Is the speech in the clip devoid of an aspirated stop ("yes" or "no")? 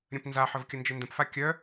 yes